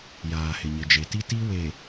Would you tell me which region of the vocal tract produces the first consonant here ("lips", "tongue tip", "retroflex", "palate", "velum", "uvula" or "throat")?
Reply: palate